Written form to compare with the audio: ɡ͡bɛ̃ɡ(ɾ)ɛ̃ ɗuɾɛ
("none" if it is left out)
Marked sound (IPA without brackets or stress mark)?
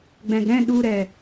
ɾ